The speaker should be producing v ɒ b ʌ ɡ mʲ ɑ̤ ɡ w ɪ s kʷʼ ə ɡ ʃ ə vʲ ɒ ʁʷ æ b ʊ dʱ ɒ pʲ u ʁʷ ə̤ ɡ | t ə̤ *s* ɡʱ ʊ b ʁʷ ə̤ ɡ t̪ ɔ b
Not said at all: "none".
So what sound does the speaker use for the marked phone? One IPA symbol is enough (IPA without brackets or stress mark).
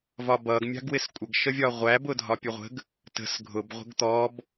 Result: s